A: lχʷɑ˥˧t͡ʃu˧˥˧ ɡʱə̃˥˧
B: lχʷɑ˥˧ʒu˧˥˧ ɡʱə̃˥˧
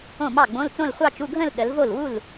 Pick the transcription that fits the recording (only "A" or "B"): A